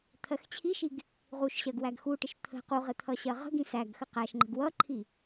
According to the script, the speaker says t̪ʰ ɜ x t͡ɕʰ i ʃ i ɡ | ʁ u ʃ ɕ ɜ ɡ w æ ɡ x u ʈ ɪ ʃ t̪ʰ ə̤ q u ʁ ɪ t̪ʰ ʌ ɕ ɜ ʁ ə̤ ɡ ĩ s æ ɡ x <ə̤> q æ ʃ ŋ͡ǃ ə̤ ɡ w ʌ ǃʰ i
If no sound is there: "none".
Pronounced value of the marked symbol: ə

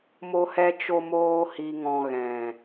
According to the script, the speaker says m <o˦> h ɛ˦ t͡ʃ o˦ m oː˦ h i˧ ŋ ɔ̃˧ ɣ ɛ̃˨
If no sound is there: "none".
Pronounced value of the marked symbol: o˦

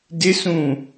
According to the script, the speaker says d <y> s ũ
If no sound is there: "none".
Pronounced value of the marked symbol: ɪ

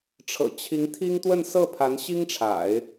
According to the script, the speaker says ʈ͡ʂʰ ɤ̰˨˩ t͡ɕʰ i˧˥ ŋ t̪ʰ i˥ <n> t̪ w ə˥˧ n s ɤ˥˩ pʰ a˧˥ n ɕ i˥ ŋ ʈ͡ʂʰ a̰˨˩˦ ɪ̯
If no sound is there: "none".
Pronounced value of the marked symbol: ŋ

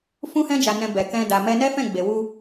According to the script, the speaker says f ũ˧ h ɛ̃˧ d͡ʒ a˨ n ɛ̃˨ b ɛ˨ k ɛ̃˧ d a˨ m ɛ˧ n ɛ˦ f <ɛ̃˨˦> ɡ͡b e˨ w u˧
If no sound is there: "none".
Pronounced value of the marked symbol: ɛ̃˦˨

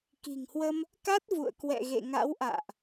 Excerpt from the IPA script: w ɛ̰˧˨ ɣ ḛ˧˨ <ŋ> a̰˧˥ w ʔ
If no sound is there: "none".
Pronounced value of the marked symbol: ŋ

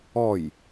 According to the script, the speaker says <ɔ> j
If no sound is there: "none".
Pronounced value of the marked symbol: ɔ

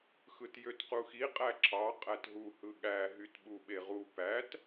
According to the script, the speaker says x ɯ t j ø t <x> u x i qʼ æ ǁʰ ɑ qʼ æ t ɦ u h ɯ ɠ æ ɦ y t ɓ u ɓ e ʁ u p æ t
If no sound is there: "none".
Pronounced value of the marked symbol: q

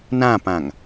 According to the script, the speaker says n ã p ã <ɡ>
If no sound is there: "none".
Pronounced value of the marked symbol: ŋ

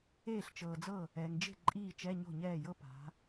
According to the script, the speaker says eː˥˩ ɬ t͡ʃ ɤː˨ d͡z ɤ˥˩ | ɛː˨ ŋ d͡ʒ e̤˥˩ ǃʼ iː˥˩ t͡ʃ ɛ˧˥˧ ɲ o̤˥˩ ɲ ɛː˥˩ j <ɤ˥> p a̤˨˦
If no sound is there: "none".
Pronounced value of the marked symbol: ɤ˥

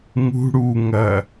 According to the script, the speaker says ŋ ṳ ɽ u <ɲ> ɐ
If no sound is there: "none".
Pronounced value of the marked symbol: ŋ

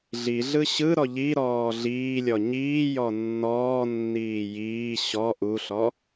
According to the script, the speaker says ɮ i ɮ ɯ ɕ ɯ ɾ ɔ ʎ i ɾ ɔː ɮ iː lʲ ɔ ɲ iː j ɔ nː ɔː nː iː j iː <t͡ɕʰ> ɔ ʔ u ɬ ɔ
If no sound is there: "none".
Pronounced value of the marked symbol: ɕ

